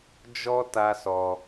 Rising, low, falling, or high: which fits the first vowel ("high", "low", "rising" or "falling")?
high